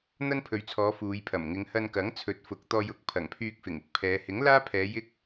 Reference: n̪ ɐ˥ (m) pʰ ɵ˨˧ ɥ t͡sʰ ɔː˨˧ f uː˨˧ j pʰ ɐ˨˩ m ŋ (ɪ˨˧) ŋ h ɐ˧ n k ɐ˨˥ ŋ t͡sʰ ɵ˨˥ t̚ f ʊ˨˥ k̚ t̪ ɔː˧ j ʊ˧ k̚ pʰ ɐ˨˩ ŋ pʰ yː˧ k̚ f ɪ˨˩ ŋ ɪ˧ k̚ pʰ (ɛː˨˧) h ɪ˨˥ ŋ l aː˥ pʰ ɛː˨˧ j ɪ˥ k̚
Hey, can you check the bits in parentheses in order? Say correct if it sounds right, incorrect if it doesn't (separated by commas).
incorrect, correct, correct